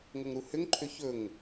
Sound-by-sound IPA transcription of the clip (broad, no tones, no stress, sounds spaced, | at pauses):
ŋ o ŋ ɾ u h ʏ ŋ ǃʰ ʏ ç ɵ ŋ